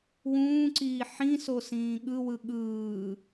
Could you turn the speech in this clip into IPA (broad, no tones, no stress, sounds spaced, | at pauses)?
w ũː ǀ iː ħ ĩ s o s ĩː ɠ ɯ w ɯ ɠ ɯː